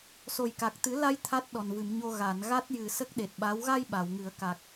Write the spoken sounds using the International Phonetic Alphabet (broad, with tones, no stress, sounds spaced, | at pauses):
s o˨˩ j k a˨˩ k̚ t̪ ɨ˨˩˦ l a˧ j t̪ʰ a˦˥ t̚ ɗ ɔ˨˩ n v ɨ˨˩˨ m ɲ o˧ ɣ a˨˩˨ n ɣ a˦˥ t̚ j ɨ˨˩ s ə˦˥ k̚ ɗ e˨˩ t̚ ɓ a˧˥ w ɣ a˧ j ɓ a˨˩˨ w ŋ ɨ˨˩˦ ə̯ k a˨˩ k̚